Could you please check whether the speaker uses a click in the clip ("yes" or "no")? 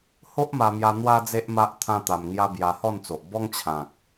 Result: no